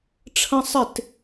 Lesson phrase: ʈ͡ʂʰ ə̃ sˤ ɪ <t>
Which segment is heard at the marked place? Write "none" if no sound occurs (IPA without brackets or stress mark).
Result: t